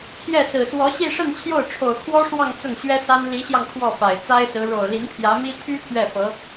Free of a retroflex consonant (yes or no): no